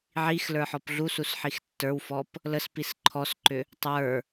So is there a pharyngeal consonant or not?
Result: yes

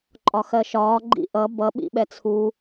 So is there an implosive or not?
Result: yes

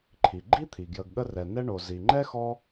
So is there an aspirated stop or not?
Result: yes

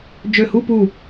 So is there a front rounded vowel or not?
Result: yes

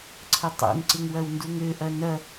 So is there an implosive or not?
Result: no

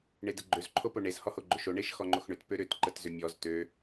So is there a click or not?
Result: yes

